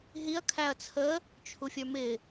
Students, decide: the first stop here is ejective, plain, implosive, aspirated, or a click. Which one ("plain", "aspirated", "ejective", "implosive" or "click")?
aspirated